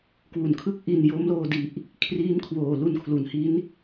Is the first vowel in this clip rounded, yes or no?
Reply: yes